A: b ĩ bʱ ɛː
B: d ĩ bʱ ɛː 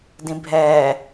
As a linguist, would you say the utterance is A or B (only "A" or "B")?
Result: B